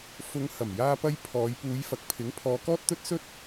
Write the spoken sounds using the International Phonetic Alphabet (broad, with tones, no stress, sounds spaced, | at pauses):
f ʊ˨˧ ŋ h ɐ˨˩ m j aː˧ p ɐ˧ j pʰ ɔː˨˧ j p uː˨˧ j f ɐ˨˥ k̚ pʰ ɪ˨˥ ŋ pʰ ɔː˨˧ k ɔː˥ t̚ t̪ ɵ˥ t̚ s ɵ˥ t̚